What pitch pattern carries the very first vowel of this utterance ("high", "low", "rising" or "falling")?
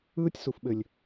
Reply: high